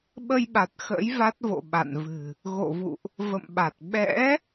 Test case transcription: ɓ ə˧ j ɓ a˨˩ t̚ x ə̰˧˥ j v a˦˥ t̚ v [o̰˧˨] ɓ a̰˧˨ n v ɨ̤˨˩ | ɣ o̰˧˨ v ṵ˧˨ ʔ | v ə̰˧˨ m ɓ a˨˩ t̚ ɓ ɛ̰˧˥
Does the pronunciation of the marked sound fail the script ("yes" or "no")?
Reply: no